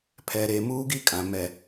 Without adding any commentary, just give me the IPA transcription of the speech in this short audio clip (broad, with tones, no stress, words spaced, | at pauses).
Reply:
pʰɛ˨ɾe˨ muː˦ɡi˦kʼã˨ mɛ˨